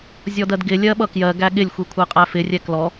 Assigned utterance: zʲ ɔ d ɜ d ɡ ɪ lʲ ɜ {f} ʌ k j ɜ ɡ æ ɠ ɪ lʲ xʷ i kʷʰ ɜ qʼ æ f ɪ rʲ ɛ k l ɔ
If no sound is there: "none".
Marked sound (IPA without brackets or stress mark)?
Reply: ɓ